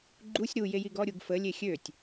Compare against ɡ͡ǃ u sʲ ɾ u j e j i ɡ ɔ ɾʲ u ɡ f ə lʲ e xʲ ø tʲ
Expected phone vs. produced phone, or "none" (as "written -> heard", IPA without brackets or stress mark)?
none